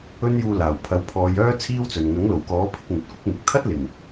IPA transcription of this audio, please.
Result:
ɵ˥ n j uː˧ l aː˨˩ w pʰ ɐ˨˥ w pʰ ɔː˨˧ j œː˥ t͡sʰ iː˥ w t͡s ɵ˨ n ŋ ɐ˨˥ ŋ l o˨˩ w k ɔː˨˥ pʰ ɪ˧ k̚ ŋ ɵ˨˥ t̚ kʷ ɪ˥ k̚ n̪ ɪ˨ k̚ t̪ʰ ɐ˥ t̚ l ɪ˨˩ ŋ

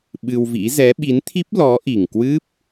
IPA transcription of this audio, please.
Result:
ɓ ɨ˧ w v ḭ˧˥ z ɛ˨˦ ɓ i˨˦ n t̪ʰ i˦˥ p̚ l ɔ˨˦ ʔ i˨˩ ŋ k w ɨ˦˥ p̚

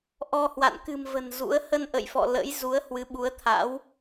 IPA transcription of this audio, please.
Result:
ʔ ɔ˧ h w a̰˧˨ n k ɨ̤˨˩ m v ə̤˨˩ n z ṵ˧˥ ə̯ h ə˧ n ʔ ə̰˧˨ j f ɔ̰˧˨ l ə̰˧˥ j z u˨˦ ə̯ h w ɨ˨˦ ɓ u˨˦ ə̯ t̪ʰ a̰˧˥ w

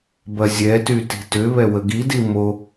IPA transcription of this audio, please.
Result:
b ɐ zʲ ɛ t y t i̤ t ʏ β ɛ w ə ɡ i d i m o

